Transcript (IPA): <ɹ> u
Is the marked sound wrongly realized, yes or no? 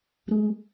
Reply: yes